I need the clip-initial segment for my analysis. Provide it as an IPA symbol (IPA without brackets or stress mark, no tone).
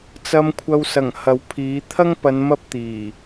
t͡s